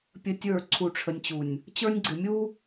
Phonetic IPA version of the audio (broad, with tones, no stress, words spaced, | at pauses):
pʲə˦tʲə˞˦˨ ǀʰu˨ʈ͡ʂʰə˨nʲt͡ɕu˨nʲ | t͡ɕə˞˦nʲɡ͡ǀɪ˨ mʲu˦